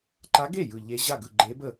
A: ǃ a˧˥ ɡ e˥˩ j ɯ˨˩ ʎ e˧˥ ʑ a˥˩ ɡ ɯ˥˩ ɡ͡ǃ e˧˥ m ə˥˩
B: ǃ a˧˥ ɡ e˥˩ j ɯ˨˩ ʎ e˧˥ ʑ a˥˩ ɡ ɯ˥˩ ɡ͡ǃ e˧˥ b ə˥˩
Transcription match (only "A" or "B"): B